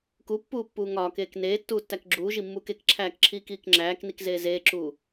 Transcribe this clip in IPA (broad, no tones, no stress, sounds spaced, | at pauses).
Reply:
k u pː uː pː uː ŋ ɒː k eː k n eː tː uː tː æ k ɡ͡ǁ uː ʒ i mː uː k e k ǁʰ æː k ǁʰ iː k iː k ŋ͡ǁ æː k n i k z eː z eː ǁ uː